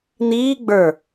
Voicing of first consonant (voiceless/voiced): voiced